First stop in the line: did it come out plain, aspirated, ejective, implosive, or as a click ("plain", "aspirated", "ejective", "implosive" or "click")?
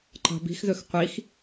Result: click